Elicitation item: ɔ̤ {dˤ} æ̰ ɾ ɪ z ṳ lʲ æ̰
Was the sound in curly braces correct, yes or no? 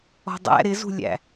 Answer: yes